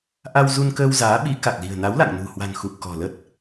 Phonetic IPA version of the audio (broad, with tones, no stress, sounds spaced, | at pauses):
ʔ a˧ w z u˧ n k əː˧ w z aː˨˦ ɓ i˨˦ k a˨˩ k̚ l i̤˨˩ ə̯ n a˨˦ w l a̰˧˨ ŋ n ṳ˨˩ h w a̤˨˩ n x u˨˩ p̚ k ɔ̤˨˩ l ə˦˥ t̚